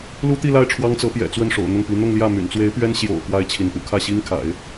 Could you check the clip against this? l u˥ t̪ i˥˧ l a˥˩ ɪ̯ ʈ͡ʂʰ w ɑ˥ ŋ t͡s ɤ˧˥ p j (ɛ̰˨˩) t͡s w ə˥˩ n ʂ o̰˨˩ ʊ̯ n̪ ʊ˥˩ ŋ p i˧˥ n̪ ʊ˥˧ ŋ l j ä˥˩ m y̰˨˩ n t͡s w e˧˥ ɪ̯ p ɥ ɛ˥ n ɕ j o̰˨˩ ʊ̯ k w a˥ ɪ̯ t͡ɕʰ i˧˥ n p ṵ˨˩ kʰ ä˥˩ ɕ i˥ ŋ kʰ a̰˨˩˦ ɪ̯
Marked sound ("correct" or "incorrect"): correct